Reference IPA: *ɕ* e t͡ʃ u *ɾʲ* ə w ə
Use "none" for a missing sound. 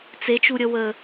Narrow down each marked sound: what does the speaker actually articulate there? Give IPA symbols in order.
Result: t͡s, ɾʲ

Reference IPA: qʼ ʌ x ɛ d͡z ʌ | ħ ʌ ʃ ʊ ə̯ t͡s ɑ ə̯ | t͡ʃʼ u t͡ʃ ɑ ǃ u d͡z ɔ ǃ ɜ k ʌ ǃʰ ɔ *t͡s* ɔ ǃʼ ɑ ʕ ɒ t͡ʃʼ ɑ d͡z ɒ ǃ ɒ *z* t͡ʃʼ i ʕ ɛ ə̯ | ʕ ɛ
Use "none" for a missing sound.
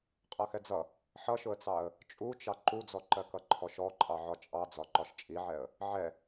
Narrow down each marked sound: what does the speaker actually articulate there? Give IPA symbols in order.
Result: ʃ, ʃ

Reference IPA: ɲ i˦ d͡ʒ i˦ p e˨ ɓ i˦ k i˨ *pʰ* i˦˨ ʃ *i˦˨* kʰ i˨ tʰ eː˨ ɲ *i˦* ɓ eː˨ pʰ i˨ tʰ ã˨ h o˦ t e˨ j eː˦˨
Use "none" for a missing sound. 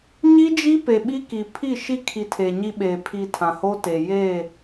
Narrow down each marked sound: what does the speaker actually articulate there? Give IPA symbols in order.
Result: pʰ, i˦, i˦

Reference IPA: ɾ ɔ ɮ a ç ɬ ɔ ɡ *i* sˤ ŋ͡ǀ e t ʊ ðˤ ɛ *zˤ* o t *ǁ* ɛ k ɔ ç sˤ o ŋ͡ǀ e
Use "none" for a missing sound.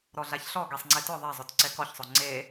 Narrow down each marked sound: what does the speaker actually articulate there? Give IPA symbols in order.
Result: e, zˤ, ǀ

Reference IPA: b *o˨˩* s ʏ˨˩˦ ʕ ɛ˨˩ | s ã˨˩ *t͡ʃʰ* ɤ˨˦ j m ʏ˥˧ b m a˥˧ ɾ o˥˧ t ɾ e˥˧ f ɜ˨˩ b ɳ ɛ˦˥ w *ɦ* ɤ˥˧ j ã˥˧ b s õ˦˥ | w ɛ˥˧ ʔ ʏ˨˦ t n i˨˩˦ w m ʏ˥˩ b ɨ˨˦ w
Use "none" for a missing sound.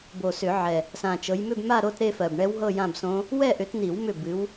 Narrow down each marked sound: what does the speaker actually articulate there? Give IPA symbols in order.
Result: o˨˩, t͡ʃ, ɦ

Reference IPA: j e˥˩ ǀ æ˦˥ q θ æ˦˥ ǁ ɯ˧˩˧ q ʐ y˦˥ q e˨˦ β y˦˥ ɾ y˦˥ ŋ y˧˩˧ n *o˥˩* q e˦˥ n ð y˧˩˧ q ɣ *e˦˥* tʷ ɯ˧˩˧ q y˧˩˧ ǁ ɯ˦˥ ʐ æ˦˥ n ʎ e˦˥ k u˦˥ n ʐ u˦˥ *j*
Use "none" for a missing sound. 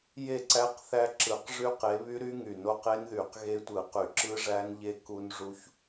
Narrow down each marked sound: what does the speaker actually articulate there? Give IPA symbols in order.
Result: o˥˩, e˦˥, ç

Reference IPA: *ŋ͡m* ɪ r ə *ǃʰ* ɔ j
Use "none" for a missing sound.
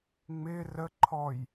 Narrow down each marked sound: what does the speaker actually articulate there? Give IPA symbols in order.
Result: ŋ͡m, ǃʰ

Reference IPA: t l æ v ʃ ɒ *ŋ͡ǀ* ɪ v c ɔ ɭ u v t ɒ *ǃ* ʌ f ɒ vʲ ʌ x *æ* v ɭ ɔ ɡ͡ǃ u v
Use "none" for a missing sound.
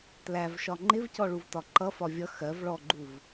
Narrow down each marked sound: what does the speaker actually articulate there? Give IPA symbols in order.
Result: ŋ͡ǃ, ǃ, ɜ

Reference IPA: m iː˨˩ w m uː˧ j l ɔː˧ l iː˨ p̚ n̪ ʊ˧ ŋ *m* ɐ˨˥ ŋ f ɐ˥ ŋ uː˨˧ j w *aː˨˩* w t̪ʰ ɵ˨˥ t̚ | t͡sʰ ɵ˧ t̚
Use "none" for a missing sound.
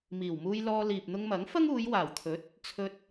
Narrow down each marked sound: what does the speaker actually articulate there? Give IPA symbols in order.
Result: m, aː˨˩

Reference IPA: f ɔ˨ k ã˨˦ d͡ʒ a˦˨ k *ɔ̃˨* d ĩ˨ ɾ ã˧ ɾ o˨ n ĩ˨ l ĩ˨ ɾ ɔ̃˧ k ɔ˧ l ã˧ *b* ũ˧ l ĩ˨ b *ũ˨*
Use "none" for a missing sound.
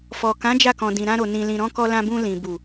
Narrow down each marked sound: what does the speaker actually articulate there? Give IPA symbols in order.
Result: ɔ̃˨, b, u˨

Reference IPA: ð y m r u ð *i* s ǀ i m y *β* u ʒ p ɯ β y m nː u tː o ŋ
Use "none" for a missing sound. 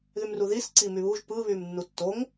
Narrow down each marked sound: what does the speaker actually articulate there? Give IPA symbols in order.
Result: i, β

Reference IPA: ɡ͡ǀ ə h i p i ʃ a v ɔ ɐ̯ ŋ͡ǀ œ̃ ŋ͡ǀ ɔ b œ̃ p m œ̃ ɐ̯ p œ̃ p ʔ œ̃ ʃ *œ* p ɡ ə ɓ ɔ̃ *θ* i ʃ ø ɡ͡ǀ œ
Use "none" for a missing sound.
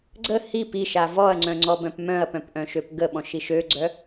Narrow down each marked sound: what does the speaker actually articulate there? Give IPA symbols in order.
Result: ø, ʃ

